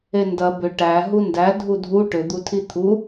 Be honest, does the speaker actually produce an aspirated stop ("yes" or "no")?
yes